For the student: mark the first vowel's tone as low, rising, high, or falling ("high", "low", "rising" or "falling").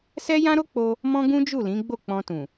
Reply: high